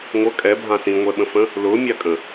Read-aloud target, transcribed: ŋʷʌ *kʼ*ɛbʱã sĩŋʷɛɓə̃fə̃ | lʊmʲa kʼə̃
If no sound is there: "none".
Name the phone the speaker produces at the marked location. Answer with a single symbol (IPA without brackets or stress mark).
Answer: kʼ